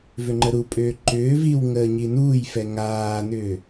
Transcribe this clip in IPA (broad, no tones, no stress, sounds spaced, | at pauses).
v ʏ ŋ͡ǃ ə ɾ u pʼ ʏː ǃ ʏː v i w ŋ əː ɲ i n uː j f ɛ ŋ aː n ʏː